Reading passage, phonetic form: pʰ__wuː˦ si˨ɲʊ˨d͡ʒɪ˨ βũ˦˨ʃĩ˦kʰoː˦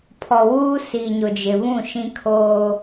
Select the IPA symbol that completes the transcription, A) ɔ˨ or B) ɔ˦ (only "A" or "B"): A